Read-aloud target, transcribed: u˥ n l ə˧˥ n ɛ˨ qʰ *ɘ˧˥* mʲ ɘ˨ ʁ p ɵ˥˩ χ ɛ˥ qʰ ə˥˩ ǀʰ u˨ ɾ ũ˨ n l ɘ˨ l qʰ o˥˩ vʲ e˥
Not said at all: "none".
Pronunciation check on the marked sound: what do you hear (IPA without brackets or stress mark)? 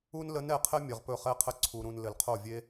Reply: ɘ˥